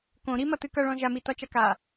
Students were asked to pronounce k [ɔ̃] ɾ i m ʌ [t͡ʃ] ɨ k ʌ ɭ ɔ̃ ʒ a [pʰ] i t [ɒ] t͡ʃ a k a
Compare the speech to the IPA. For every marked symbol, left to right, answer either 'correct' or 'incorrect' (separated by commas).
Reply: incorrect, incorrect, incorrect, correct